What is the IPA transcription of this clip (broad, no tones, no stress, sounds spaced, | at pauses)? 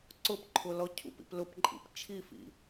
ǀ ʊ p ǃʰ ʊ l ɔ cʰ ṵ p ḭ p l ʊ p ǃʼ ḭ p t͡ʃʰ i f ḭ